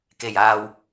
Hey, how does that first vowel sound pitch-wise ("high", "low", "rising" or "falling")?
low